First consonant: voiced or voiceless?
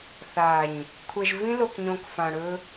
voiceless